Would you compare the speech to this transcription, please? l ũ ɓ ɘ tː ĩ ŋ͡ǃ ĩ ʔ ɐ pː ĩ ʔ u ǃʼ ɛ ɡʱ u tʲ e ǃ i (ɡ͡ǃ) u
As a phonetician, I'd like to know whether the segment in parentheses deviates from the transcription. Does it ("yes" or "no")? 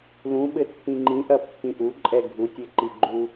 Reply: no